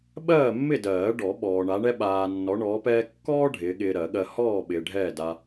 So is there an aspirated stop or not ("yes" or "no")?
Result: no